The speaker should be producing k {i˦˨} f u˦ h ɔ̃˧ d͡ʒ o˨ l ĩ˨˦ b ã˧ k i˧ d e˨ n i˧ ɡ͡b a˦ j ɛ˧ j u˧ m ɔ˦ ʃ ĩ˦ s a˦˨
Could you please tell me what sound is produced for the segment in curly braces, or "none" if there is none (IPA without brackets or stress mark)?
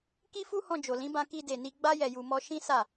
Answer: i˦